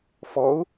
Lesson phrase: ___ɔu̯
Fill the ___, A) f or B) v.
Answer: A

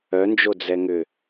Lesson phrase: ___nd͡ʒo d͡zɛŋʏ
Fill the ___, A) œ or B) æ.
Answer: A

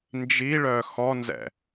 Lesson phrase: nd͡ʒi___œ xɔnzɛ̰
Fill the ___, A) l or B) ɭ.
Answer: B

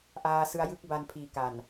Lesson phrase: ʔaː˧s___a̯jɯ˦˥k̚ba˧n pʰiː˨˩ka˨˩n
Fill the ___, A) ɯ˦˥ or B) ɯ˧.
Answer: A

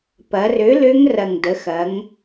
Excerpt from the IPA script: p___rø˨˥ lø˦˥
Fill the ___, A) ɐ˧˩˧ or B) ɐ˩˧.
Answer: B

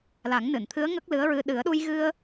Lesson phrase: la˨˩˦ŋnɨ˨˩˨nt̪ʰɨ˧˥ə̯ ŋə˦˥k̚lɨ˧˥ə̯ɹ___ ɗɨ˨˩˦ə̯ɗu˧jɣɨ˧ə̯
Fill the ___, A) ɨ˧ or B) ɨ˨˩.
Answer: A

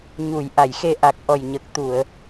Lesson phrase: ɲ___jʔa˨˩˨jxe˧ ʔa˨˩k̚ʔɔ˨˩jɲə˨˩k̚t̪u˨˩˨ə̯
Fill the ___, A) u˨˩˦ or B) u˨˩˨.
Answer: B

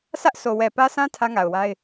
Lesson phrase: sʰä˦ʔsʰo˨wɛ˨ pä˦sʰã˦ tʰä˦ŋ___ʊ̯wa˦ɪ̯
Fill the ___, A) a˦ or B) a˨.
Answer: B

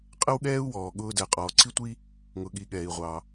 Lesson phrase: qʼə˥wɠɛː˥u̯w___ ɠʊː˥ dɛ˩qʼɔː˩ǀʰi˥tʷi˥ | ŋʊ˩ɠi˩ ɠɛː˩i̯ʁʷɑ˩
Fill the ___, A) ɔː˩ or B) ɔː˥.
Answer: A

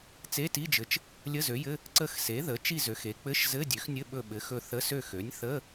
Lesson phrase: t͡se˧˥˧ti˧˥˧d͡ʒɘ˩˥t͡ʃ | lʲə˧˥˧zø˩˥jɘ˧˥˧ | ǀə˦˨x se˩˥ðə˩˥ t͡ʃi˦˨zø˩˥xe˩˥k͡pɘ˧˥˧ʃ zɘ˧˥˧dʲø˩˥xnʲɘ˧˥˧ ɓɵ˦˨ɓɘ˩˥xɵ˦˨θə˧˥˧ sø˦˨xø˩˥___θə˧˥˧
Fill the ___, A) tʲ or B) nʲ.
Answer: B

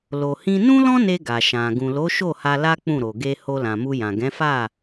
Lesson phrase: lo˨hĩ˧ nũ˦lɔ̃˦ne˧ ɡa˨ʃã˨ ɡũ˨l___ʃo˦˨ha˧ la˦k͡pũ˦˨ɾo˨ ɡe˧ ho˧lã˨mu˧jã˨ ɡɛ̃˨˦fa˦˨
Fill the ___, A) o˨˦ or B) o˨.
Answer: A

